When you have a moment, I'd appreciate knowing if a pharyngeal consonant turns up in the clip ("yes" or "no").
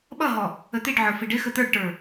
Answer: yes